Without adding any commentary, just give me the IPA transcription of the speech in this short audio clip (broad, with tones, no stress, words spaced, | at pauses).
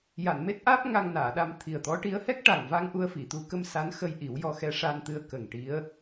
ja˨˩˨nme˦˥t̚ʔaː˦˥p̚ ŋa˧ŋnaː˨˩˨ɗa˧m t̪ʰi˨˩ə̯t̪ɔ˧˥ʈi˧˥ə̯ hɛ˦˥k̚ʈa˨˩ŋva˧ŋ ʔu˧ə̯fi˨˩˨t̪u˧˥kə˧m sa˧˥nxə˧j ʔi˨˩˦wjɔ˧xɛ˧˥ ʂa˧nt̪ɨ˧ə̯ kə˨˩ŋʈi˧˥ə̯